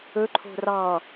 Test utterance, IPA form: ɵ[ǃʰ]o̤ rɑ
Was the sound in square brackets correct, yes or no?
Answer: yes